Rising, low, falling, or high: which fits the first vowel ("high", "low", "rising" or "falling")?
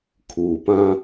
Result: low